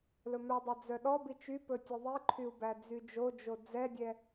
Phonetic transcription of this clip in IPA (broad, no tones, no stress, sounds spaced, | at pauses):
l ɵ m œ dˤ œ d͡z œ ɗ ɔ b i t͡ʃ y p ɵ tʲ ɵ ðˤ i ǃʰ y u̯ b æ d͡z y d͡ʒ o d͡ʒ o d͡z ɛ dʲ ɛ